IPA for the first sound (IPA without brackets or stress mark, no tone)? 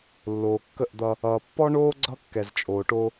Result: lː